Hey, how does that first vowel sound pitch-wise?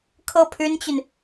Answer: falling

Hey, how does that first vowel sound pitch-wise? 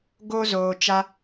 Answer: high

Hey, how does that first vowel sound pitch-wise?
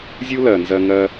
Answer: high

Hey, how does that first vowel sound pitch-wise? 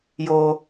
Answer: high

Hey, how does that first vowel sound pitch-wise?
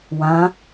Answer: rising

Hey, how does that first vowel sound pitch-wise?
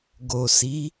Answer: low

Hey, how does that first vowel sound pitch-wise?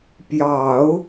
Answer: low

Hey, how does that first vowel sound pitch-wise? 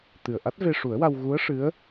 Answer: low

